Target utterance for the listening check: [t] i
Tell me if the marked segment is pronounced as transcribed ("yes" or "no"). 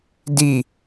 no